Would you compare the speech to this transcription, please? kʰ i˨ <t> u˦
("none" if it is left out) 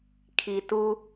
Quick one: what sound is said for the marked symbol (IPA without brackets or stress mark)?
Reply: t